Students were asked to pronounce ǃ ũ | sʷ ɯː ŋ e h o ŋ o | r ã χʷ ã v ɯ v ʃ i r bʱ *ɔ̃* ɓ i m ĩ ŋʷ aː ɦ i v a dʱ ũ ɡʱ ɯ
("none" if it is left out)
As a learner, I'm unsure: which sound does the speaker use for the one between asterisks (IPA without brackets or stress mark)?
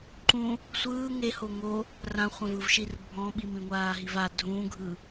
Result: ɔ̃